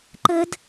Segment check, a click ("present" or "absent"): present